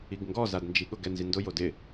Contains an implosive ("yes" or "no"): yes